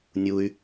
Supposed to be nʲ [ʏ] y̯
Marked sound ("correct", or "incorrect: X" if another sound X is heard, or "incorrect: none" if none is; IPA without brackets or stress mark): incorrect: u